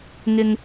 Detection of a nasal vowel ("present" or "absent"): absent